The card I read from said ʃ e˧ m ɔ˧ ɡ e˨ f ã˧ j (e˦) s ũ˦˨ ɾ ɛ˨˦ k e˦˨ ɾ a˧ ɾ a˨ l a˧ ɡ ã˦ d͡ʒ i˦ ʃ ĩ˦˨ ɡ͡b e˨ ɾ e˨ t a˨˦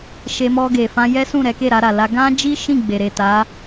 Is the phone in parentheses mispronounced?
yes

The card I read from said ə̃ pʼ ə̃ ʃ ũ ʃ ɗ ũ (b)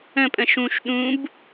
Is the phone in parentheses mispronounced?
no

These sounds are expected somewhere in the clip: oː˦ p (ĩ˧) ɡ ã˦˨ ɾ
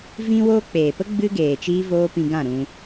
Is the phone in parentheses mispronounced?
no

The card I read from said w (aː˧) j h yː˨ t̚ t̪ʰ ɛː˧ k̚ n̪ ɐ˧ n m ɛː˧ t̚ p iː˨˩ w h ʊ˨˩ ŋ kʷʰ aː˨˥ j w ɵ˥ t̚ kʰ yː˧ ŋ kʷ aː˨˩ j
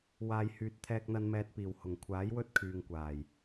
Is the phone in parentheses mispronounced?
yes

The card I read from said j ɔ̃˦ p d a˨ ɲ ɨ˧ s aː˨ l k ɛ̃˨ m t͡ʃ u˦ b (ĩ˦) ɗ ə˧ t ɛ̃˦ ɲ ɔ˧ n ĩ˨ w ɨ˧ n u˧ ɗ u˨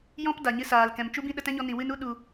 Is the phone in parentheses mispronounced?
no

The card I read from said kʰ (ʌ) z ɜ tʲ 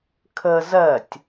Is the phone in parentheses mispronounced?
yes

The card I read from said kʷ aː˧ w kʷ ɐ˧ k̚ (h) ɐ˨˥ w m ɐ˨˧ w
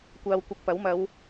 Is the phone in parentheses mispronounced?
yes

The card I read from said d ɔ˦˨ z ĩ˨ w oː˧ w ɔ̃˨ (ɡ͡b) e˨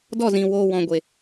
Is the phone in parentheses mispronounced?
yes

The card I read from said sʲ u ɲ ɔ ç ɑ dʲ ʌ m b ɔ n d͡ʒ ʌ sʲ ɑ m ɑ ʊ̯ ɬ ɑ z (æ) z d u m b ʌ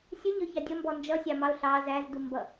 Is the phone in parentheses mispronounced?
no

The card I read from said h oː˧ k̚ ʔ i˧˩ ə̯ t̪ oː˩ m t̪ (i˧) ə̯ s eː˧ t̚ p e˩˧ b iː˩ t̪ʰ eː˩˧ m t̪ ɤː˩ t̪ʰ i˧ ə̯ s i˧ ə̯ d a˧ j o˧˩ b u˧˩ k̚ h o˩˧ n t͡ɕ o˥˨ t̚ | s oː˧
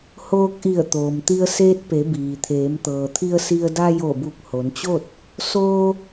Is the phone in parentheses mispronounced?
no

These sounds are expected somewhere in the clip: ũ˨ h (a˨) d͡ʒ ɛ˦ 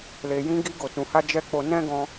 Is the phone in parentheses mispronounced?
yes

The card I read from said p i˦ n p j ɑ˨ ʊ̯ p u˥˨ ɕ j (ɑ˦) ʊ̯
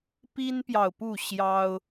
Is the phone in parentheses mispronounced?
no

